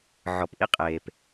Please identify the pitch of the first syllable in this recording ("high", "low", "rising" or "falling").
low